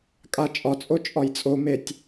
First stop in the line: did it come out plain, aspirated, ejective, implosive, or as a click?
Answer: ejective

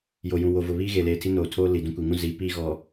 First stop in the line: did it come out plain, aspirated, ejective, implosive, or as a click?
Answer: aspirated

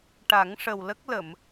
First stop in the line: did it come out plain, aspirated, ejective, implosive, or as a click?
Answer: plain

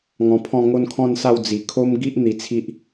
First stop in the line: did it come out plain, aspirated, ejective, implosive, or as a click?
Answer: aspirated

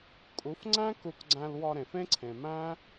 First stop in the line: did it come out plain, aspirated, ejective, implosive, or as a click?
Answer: ejective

